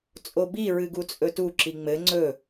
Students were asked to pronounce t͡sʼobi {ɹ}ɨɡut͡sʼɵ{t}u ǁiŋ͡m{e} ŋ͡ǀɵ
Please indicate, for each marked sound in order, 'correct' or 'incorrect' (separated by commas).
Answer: correct, correct, incorrect